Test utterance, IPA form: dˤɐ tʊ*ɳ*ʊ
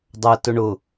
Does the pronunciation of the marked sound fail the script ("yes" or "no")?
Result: no